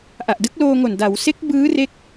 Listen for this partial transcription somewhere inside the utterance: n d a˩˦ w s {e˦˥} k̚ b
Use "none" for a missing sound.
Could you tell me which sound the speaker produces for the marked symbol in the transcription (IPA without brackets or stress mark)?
e˦˥